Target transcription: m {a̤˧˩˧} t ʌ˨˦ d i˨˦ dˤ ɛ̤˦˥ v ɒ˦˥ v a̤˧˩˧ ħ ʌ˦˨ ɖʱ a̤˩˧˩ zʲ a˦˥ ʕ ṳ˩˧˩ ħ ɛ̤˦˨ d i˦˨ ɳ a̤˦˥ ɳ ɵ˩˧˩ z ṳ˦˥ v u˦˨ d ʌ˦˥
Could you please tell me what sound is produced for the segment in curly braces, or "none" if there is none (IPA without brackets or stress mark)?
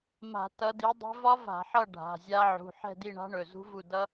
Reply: a̤˧˩˧